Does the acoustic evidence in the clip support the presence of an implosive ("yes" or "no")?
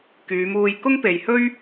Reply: no